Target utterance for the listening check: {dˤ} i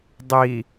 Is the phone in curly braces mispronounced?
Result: no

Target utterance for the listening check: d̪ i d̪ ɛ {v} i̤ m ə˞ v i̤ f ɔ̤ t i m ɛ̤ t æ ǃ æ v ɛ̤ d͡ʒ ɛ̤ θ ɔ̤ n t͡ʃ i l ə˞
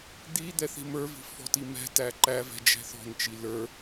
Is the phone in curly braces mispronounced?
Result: yes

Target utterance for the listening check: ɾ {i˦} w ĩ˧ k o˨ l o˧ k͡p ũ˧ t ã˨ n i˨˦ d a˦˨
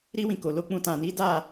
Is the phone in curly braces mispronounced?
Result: no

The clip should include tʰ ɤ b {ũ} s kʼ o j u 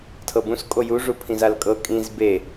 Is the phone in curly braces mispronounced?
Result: no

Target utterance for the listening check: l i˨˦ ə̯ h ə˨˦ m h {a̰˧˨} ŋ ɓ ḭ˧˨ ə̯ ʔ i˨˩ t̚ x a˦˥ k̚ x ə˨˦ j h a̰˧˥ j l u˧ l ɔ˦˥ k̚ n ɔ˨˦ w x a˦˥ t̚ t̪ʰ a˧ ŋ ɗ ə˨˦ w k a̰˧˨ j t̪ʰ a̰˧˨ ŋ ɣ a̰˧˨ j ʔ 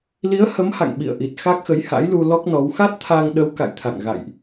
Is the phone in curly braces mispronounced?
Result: no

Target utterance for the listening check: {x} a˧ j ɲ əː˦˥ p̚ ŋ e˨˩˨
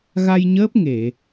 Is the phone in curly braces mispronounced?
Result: yes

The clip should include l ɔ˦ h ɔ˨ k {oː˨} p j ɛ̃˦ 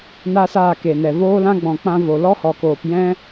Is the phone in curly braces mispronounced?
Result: no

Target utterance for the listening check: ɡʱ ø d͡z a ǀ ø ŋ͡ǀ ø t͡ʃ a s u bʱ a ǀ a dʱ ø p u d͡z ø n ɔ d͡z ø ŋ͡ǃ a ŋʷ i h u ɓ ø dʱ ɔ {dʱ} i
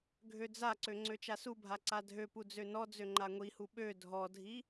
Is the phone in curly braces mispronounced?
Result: no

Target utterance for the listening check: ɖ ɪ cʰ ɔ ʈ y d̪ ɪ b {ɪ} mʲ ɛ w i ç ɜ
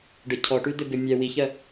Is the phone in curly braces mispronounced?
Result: no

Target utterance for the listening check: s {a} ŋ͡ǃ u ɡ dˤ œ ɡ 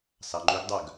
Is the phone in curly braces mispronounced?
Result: yes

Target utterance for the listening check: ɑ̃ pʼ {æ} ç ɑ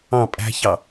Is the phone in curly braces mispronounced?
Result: yes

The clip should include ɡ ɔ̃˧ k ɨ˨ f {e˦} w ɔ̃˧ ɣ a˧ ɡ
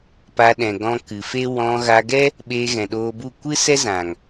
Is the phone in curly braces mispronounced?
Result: no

